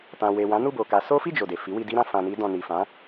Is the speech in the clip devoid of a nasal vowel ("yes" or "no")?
no